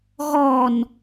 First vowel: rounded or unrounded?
rounded